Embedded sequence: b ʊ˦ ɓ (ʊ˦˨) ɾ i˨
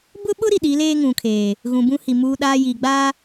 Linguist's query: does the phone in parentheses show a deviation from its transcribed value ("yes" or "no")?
yes